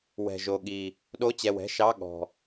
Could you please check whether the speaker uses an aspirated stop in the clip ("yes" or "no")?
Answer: no